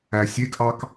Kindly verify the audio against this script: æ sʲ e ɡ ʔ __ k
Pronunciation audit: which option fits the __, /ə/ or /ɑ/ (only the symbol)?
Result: ɑ